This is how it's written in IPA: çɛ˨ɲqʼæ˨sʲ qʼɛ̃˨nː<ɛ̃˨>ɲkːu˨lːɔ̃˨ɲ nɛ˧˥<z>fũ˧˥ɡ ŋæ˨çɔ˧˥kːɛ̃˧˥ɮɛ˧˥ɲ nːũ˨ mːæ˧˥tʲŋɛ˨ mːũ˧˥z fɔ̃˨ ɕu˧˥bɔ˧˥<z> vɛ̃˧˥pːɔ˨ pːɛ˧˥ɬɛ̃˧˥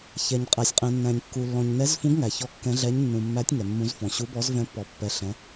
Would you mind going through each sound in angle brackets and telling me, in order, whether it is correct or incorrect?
incorrect, correct, correct

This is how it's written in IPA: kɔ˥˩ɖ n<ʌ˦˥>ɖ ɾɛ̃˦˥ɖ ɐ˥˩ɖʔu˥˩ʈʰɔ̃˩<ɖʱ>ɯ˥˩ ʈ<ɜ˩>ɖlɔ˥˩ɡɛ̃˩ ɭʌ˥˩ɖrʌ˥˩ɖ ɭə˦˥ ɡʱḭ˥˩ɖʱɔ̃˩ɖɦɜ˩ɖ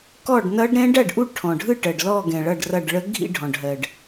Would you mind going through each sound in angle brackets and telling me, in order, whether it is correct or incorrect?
correct, correct, correct

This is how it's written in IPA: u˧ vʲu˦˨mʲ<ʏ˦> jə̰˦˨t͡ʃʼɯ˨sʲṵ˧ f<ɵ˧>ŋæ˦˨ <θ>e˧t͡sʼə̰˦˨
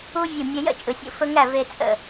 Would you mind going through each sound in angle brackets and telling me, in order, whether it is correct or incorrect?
incorrect, correct, incorrect

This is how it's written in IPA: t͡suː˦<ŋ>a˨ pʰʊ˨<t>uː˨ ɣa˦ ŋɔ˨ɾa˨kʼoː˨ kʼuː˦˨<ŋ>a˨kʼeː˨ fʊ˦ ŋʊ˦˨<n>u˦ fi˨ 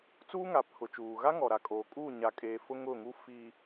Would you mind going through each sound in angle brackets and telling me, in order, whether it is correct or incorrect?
correct, incorrect, incorrect, incorrect

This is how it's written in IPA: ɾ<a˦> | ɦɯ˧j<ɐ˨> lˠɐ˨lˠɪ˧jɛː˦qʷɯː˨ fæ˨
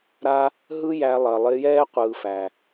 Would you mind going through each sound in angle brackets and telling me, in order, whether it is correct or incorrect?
correct, incorrect

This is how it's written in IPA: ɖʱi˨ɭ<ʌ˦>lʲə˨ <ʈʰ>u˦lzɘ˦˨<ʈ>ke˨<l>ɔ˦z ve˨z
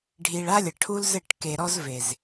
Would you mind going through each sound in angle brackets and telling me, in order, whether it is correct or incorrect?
incorrect, correct, correct, incorrect

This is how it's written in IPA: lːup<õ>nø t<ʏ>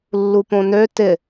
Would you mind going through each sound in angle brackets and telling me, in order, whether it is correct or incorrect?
correct, incorrect

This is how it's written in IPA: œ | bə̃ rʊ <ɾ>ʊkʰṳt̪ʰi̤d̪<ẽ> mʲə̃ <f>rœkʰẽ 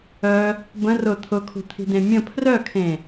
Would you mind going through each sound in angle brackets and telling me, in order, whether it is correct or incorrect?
incorrect, correct, incorrect

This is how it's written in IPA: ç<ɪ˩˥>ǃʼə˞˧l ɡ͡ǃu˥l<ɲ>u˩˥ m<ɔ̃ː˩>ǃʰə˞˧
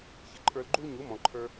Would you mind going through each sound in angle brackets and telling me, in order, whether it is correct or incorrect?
correct, correct, incorrect

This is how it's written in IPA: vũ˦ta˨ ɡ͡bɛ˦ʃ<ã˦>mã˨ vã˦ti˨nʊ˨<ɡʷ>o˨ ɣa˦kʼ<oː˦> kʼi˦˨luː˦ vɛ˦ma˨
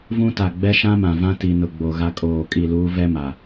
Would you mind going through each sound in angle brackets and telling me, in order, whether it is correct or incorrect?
correct, incorrect, incorrect

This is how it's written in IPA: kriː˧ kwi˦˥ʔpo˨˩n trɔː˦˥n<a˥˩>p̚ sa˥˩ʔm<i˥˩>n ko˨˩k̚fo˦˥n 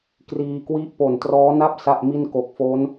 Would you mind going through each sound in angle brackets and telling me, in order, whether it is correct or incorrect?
correct, correct

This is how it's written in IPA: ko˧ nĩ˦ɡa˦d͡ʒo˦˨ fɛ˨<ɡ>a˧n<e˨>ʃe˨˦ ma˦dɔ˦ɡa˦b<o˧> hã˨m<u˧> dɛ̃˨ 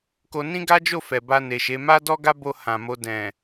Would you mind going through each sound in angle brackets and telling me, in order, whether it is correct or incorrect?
incorrect, correct, correct, incorrect

